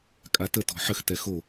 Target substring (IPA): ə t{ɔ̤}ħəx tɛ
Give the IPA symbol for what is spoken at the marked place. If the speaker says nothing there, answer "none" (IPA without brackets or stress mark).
ɔ̤